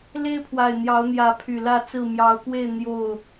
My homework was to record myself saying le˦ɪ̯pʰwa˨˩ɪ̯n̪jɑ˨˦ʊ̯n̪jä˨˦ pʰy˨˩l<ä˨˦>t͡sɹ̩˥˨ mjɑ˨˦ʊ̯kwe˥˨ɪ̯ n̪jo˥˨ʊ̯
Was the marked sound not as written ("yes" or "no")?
yes